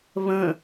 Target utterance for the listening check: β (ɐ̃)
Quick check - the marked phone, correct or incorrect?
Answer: incorrect